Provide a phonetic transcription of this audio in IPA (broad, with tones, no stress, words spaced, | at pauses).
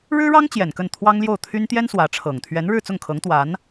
ɻɻ̩˥ɻɑ˥ŋ t͡ɕjɛ˨˩nkə˥˩n t̪ʰwɑ˥ŋljo˥˩ʊ̯t̪ʰy˥n t̪jɛ˥n swä˧˥ʈ͡ʂʰɤ˨˩ŋ t̪ʰɥɛ˧˥nɻɻ̩˥˧t͡sʊ˥˩ŋkʰɤ˧˥ŋ t̪wa˧˥n